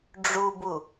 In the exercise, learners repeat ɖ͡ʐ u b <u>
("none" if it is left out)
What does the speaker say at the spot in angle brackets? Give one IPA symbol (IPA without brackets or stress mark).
u